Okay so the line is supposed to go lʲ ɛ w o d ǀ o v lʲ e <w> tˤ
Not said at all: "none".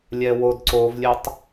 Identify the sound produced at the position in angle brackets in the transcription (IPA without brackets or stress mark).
none